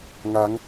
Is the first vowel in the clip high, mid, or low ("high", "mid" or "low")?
low